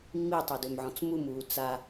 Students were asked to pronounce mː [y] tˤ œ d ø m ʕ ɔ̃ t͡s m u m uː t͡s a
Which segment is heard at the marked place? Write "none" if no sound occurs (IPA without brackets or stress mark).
i